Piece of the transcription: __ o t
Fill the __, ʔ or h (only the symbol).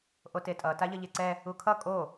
ʔ